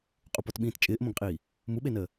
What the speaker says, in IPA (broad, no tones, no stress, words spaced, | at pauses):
qʼupɔtɓĩːt t͡ʃʼɪːʔmõɡqʼiː | muɓenəː